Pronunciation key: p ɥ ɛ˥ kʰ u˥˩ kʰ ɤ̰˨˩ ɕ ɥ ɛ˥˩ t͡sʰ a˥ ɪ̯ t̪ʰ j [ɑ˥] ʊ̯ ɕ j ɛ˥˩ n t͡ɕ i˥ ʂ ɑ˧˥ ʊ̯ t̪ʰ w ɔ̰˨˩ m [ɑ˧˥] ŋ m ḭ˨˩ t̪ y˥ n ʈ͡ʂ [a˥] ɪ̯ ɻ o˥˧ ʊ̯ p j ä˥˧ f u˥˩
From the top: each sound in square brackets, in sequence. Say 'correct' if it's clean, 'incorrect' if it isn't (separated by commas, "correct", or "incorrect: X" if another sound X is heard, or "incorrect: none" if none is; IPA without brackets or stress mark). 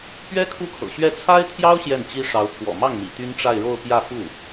correct, incorrect: ɑ˥˩, incorrect: a˥˧